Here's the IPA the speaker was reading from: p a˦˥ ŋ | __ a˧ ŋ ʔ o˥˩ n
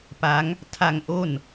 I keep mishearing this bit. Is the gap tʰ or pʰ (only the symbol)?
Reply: tʰ